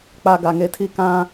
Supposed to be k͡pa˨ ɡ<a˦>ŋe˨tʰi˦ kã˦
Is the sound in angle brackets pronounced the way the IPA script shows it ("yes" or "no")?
no